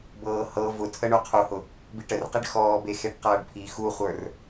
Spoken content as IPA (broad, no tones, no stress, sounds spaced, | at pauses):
b ɤː h ɤ v ʊ tʰ ə ɳ u qʰ u h ʊ | b i ʈ ə r q i ɖ x ɔː b e x e ɖ q ʌː ɖ pʰ i x u χʷ ə˞ r